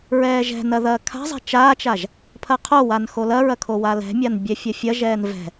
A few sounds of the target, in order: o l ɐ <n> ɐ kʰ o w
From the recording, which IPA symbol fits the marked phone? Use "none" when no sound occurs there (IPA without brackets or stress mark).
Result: ɹ